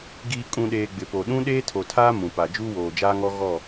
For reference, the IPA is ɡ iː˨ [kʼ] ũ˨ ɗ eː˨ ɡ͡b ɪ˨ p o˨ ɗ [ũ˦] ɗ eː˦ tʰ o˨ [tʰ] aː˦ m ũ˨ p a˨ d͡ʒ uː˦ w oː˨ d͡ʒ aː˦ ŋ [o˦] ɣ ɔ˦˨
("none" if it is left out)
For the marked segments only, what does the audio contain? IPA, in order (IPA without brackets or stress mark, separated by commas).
kʼ, ũ˦, tʰ, ɔ˦